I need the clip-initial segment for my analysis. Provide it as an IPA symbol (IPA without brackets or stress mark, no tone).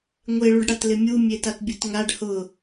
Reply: ŋʷ